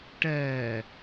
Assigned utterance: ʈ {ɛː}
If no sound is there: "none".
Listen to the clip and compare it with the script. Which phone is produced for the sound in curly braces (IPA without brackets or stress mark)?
ɛː